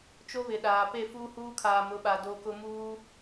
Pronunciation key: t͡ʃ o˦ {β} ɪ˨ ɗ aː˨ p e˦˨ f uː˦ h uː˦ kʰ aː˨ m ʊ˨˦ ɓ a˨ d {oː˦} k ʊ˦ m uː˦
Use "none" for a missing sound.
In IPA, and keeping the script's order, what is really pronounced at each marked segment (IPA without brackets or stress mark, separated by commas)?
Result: β, o˦